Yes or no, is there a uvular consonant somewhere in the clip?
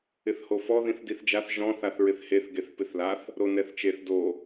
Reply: no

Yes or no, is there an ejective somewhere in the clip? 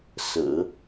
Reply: no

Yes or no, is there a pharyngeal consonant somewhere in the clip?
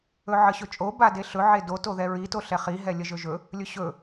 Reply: yes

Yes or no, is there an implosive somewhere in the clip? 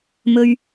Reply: no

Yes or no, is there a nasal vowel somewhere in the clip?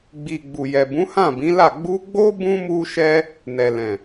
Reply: yes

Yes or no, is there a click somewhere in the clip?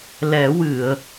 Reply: no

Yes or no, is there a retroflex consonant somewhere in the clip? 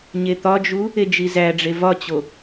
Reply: yes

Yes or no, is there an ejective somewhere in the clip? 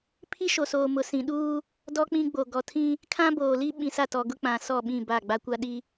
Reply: no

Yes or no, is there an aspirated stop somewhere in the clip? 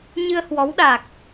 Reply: no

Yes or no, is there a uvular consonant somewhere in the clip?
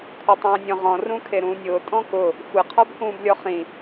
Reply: yes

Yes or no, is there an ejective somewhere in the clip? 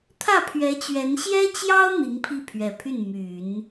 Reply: no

